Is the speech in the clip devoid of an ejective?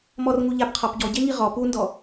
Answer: yes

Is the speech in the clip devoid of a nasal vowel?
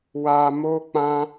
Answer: no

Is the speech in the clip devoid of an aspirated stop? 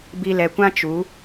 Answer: yes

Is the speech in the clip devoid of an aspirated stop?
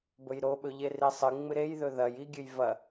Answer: yes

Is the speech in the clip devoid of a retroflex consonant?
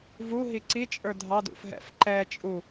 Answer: yes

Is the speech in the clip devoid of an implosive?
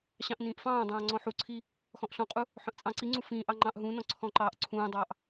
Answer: yes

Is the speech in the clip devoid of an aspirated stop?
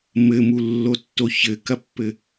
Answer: yes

